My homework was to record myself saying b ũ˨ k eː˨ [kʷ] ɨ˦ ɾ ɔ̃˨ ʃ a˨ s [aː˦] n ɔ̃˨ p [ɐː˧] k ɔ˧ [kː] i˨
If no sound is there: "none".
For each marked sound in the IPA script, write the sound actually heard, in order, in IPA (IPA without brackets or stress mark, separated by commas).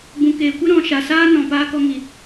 kʷ, aː˦, aː˧, ŋ